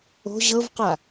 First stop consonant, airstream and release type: plain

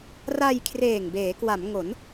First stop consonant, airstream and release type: aspirated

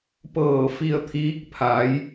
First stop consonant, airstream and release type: plain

